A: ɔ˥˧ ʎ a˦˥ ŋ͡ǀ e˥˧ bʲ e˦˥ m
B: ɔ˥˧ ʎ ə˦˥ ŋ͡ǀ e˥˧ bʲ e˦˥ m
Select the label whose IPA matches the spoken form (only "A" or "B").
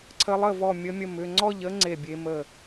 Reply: B